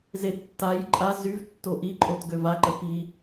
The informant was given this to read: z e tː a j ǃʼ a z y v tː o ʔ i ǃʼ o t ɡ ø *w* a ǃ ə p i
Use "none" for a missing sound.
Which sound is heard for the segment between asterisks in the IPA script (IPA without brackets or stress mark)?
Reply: v